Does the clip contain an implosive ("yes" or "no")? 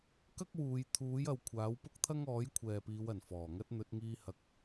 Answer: no